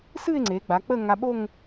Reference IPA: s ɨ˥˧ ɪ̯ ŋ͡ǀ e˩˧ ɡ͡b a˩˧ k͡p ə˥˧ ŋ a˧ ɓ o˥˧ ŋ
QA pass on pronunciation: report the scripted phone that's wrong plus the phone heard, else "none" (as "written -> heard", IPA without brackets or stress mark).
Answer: none